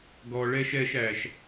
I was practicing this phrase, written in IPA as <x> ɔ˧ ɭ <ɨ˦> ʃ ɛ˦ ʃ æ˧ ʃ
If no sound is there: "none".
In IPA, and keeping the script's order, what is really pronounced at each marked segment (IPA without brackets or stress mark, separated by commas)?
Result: ɡ, ɛ˦